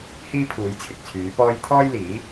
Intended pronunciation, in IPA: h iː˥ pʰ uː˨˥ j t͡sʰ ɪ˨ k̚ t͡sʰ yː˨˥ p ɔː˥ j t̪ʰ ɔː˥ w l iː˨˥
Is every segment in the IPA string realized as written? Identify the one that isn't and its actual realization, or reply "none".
w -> j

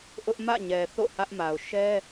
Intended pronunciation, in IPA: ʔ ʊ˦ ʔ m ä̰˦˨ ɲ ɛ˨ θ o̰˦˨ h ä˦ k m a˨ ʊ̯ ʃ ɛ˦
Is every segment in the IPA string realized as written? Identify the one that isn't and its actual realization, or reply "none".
k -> ʔ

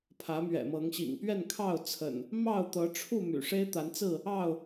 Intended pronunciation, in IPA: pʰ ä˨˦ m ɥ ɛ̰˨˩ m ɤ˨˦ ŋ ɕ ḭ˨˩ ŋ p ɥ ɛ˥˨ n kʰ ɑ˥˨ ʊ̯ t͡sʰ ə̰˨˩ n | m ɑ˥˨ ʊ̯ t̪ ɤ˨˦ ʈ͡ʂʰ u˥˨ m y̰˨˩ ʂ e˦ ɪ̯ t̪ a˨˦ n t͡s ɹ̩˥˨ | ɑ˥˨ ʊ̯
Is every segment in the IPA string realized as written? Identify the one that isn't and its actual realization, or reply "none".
none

